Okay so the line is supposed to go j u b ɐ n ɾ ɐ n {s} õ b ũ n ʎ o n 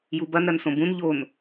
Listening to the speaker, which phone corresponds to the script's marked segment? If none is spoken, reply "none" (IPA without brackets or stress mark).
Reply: s